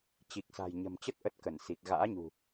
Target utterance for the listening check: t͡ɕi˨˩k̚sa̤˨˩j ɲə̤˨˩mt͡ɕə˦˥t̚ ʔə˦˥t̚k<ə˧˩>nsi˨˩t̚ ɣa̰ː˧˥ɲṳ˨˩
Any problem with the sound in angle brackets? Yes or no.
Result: no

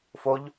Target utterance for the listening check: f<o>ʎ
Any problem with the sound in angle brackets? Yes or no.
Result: no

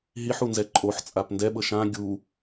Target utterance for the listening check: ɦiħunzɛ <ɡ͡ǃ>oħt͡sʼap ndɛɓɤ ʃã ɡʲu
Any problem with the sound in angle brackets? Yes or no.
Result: yes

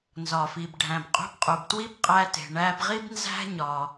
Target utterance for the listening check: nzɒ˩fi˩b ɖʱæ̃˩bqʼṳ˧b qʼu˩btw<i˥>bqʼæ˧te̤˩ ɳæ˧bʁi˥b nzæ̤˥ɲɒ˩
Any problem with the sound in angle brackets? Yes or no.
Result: no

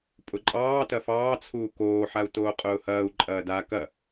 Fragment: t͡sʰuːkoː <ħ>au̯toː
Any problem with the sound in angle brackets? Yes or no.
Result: no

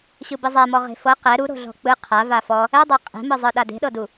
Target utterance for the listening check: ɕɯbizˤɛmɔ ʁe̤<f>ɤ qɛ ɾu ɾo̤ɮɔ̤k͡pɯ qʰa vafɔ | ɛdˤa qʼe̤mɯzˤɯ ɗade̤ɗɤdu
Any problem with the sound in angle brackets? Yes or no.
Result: no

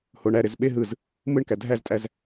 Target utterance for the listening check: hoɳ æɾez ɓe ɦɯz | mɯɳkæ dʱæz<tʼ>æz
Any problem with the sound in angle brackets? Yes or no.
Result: no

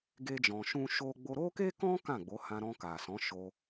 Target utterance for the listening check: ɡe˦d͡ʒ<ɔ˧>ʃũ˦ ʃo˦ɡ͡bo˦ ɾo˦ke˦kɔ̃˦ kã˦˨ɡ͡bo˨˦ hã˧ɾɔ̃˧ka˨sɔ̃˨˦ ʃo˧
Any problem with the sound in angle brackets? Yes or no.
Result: yes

